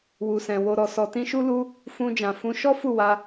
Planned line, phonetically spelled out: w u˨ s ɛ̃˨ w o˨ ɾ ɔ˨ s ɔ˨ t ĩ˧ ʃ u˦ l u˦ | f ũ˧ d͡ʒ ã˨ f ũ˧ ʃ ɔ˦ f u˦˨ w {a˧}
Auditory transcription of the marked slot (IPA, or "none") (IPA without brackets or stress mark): a˧